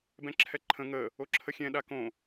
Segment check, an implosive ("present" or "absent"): present